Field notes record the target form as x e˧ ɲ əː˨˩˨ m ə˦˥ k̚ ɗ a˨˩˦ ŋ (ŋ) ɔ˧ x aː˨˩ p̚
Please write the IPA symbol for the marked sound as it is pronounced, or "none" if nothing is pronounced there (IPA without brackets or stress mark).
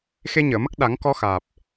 k